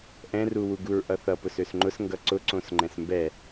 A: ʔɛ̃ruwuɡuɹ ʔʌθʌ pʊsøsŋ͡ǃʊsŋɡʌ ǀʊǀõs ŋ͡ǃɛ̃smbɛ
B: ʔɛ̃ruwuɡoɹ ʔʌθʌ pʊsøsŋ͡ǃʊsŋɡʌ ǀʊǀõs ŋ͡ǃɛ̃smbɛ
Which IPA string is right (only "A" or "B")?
A